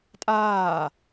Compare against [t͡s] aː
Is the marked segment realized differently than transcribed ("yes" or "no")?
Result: yes